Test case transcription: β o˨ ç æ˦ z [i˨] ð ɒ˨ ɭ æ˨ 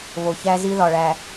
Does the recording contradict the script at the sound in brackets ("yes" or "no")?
yes